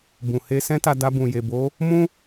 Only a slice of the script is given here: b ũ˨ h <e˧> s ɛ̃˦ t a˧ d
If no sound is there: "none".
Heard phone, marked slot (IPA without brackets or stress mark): e˧